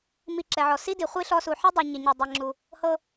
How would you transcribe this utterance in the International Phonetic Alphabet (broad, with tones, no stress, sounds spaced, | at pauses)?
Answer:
m i˧ ǁ ɛ˩ ʕ ɔ˩ s i˥ d i˩ χʷ i˥ ɬ ɔ˧ s u˩ ħ i˥ dˤ i˩ ɲ e˩ ɲ o˩ dˤ ɛ˩ ŋ͡ǁ u˩ | h ɤ˥